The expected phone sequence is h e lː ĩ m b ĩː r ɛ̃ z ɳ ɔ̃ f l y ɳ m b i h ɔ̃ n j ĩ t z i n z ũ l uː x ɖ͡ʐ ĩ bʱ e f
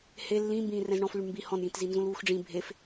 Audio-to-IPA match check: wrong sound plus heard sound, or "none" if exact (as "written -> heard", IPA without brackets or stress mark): none